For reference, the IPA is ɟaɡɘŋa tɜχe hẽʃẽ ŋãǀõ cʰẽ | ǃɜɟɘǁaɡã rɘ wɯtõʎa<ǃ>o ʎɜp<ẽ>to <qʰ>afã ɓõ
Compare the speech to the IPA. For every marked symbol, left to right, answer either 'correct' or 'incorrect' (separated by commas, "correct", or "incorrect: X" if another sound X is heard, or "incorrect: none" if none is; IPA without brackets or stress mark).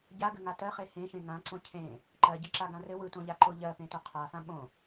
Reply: correct, correct, correct